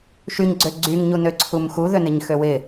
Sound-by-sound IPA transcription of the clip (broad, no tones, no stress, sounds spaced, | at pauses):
ʃ y ɲ ɡ͡ǀ ø ɡ͡ǀ y ŋ ɲ u n ø ǀʰ u m x u ð ø n ɪ ɲ x ø w ɪ